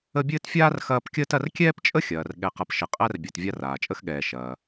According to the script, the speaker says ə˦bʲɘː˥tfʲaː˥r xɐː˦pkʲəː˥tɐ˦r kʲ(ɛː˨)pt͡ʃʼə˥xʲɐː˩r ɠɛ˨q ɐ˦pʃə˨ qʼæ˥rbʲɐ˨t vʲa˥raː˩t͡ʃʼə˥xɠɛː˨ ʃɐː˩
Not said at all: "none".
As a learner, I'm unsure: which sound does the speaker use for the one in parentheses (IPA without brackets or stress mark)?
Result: ɛː˥